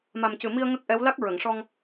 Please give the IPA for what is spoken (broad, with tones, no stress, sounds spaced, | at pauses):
m a˨˩ m c ɨ˨˩ m i˧ ə̯ ŋ ə˦˥ k̚ ʔ ɛ˧˥ w l a˦˥ k̚ ɹ ə˨˩˨ ŋ ʂ ɔ˧ ŋ